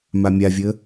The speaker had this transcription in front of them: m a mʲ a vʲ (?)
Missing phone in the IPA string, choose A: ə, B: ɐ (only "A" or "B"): A